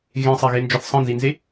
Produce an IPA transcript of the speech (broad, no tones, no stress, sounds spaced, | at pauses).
ɣ ẽ sˤ ɛ ɣ e n d͡ʒ ɒ θ sˤ ɛ̃ n z i n z e